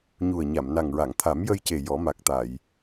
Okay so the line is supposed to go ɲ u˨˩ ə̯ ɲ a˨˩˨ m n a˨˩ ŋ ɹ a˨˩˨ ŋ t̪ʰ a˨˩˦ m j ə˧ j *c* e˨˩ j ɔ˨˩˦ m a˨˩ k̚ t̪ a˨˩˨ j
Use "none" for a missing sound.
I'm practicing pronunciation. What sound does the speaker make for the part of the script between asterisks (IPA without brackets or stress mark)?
c